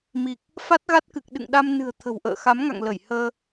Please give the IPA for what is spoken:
m i˨˩ k̚ | f a˦˥ t̚ ɣ a˦˥ t̚ k ɨ˨˩ k̚ ɗ ɨ̰˧˨ ŋ ɗ a˧ m n ɨ̤˨˩ ə̯ t̪ʰ ə̤˨˩ w ʔ ə̰ː˧˨ x a˨˦ m ŋ a̰˧˨ ŋ l ə˧˩ j h əː˧

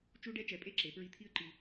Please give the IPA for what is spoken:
t͡ʃ u˥ ɖ ɛ˥ t͡ʃ ɛ˨˥ pʼ e˥ ǁ e˩˧ p ɹ i˧ t̪ʰ i˥ ə̯ ǃ i˧

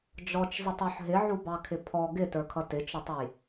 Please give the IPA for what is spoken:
d͡ʒ ɔ t͡ʃ zˤ ɪ tˤ ɔ ħ ɦ ɪ ʕ u b ɑ kʰ ɪ pʰ ɔ ɡ ɪ t ə˞ kʰ ʌ t ɪ t͡ʃ ʊ tˤ u j

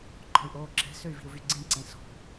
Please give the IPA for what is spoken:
ǃ ɔ̤ y̯ ʔ oː ǁ ɛ̤ s ø y̯ v i̤ u̯ v y ɡ͡ǀ ĩ ǀ ẽ s ɔ̤

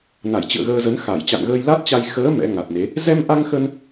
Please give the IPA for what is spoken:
n a˧˩ j t͡ɕ ɨ̰˧˨ ə̯ ɣ əː˧ z ə˨˦ n x a˧˩ j t͡ɕ a̰˧˨ n ɣ əː˧ j l a˦˥ t̚ t͡ɕ a˧ j x əː˨˦ m ɛ̰˧˥ ŋ a˨˩ t̚ n e˨˦ | z ɛ˧ m ʔ a˧ ŋ x ə˧ n

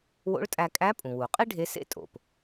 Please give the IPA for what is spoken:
w o̰˧˥ ɭ tʼ æ˧ kʼ æ˧˥ pʼ ũ˩ w u˩ qʼ i˥ ɖʱ e˧˥ s ḛ˥ tʼ o̰˩ p

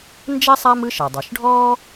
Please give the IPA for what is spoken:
n d͡ʒ ɛ˥ sˤ a˥ m ɯ˥ ʃ ɛ˩ dˤ ɤ˩ ʃ ɖʱ ɔː˥

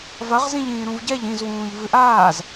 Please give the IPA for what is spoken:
v ɐ ʁ z ĩ ʎ ĩː ɾ ũ v ɟ ɛ ʎ ĩ z w ũː ʎ v ɨ ʔ aː z

